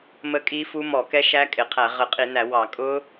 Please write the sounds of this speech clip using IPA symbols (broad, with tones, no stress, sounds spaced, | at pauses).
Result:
m ə˦˥ kʼ i˦˥ f u˦˥ m ɔ˧˩˧ k ɛ˦˥ ʃ æ˦˥ kʼ ɪ˧˩˧ qʰ æ˧˩˧ ʁ ə˧˩˧ qʼ i˧˩˧ n æ˧˩˧ w ɑ˧˩˧ kʼ ʊ˦˥